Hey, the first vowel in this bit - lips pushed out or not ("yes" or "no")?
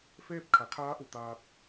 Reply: no